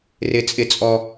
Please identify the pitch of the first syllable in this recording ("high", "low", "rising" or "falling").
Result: falling